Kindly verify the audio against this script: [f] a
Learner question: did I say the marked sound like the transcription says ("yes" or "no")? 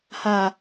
no